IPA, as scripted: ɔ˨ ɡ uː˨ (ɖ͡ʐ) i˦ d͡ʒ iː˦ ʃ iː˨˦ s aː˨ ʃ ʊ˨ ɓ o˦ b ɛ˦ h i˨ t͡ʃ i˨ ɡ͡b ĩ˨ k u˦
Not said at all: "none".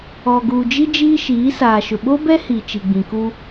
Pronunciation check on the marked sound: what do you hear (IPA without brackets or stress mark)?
d͡ʒ